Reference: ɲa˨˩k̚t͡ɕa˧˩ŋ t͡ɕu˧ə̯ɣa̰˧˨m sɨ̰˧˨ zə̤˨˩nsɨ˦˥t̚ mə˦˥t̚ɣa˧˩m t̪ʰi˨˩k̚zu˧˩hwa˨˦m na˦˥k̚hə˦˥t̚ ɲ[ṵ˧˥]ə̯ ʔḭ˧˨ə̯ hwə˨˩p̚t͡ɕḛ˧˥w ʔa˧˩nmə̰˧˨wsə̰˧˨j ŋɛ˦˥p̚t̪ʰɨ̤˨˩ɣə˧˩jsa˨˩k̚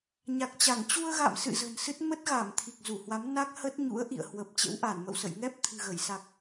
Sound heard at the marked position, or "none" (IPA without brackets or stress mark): ṵ˧˥